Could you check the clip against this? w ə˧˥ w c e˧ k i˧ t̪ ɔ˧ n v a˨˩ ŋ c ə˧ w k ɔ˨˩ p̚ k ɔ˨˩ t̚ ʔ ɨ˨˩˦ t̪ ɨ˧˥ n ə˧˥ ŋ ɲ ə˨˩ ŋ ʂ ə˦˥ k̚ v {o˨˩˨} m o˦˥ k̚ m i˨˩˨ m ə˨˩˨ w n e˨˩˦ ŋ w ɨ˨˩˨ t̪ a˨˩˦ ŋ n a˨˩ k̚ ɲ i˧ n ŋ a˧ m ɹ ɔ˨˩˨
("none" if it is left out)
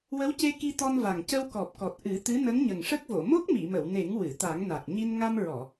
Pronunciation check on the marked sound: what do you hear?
o˨˩˨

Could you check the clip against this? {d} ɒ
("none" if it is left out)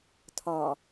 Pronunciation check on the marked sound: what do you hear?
tʰ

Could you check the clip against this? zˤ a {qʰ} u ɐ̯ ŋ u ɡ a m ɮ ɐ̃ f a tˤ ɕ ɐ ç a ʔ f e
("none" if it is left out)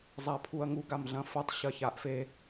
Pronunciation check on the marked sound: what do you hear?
pʰ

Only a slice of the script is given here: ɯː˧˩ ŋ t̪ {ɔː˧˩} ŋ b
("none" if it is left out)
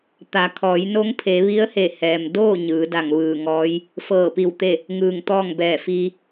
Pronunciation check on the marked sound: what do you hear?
ɔː˥˨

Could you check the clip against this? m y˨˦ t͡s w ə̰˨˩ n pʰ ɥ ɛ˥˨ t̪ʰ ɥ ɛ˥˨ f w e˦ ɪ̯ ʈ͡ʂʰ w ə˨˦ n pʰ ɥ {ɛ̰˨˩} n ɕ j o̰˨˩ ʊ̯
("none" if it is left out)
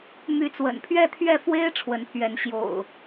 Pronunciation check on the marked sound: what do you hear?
ɛ˨˦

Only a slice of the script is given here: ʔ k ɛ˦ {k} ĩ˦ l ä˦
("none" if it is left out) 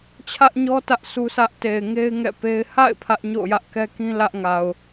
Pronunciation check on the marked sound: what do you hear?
k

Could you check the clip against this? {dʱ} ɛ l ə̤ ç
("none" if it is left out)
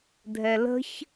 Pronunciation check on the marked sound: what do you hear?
dʱ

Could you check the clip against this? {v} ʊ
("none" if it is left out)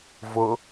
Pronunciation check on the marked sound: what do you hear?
v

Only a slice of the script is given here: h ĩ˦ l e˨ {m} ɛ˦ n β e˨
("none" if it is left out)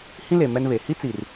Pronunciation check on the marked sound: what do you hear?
m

